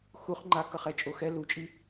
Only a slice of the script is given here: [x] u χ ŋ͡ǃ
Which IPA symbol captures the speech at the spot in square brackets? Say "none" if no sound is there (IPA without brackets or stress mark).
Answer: x